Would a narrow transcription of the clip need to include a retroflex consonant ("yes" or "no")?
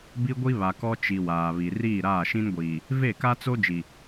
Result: no